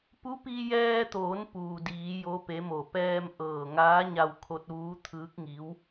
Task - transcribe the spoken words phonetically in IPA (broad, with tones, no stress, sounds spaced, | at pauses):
p u˧˥ p i˧ j ɛː˧ t̪ oː˩˧ n p uː˩ d iː˩˧ j o˧˥ p e˧˥ m o˧˩ p ɛː˧ m ʔ ɤː˧˩ ŋ aː˧˥ ɲ a˧ w kʰ o˧ t̚ ʋ uː˧˥ t̪ʰ ɯː˧˥ k̚ ŋ i˧˥ w